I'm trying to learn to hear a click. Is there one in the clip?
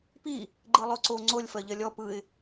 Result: yes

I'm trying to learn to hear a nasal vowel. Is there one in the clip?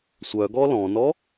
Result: yes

